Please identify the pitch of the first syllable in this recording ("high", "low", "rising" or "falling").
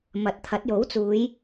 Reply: rising